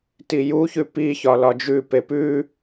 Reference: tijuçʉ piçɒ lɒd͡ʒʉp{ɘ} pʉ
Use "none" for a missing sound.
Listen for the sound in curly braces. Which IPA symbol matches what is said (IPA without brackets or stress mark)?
e